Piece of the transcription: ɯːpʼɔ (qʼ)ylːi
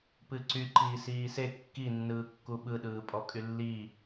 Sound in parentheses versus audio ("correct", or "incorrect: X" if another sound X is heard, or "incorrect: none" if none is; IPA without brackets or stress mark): incorrect: kʼ